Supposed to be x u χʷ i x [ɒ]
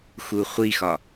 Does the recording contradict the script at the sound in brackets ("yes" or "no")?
no